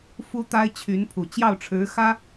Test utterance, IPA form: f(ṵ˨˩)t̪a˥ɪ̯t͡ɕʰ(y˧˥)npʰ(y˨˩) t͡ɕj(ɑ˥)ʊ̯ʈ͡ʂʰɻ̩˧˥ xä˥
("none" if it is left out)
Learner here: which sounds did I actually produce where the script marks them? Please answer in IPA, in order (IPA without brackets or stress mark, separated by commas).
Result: u˥, y˧˥, u˨˩, ɑ˥˩